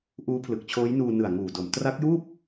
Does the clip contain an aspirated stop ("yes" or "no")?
yes